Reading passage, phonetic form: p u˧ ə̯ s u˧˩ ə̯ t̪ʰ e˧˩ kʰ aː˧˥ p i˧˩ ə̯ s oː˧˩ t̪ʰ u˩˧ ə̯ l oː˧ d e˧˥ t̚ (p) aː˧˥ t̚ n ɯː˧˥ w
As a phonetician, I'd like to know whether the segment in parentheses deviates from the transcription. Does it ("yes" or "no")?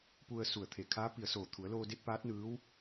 no